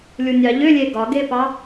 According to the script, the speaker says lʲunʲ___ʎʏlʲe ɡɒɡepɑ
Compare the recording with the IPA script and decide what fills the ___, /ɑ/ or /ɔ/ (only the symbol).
ɑ